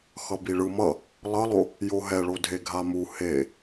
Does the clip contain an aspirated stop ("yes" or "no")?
no